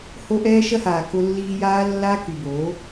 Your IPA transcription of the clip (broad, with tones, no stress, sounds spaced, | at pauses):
h o˦ ʔ ɛː˦ ʃ ɐ˦ h aː˨ k ʊ˦ lː iː˦ j aː˦ lː aː˦ k y˨ b oː˨˦